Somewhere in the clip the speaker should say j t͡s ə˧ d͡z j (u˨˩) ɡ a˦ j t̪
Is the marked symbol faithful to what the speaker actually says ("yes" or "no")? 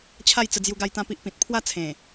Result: no